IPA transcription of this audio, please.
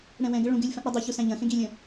ɽɛ̃wɛ̃ɡə ɭũɡ ɨlʲfɐ̃ʔ ɽɐdˤuçu sæ̃ʎɐ̃xẽɡ ilʲə̃

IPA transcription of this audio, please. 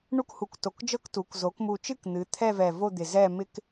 ɳu˥khu˧˩kto˧˩kd͡ʒɤ˥k tu˩˥k zo˩˥kmu˧˩t͡ʃɨ˥˧k n̪ɨ˩˥ t̪ʰɛ˥˧vɛ˧˩vo˥˧d̪ɪ˧˩ zɛ˥˧mɪ˥k

